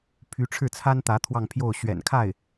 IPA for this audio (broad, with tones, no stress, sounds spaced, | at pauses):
pʰ y˧˥ ʈ͡ʂʰ ɻ̩˥˩ t͡sʰ a˥ n t̪ ä˧˥ t̪ʰ w ɑ˥˧ ŋ pʰ j o˥˩ ʊ̯ ɕ ɥ ɛ̰˨˩ n kʰ a˥˩ ɪ̯